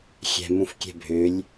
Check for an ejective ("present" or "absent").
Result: absent